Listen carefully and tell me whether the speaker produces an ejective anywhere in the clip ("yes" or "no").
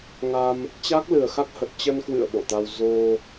no